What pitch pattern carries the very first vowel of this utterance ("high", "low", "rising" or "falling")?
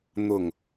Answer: low